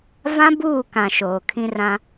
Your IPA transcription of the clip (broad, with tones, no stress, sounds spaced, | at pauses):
v ã˦ b uː˦˨ k ã˨ ʃ oː˨ kʰ ĩ˦ r ã˦